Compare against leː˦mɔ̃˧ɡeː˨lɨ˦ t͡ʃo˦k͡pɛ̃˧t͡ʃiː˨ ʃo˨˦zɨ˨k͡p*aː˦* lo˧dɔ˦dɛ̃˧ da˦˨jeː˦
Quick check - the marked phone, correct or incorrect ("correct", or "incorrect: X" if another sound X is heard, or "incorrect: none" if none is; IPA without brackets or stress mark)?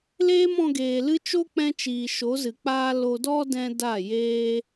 correct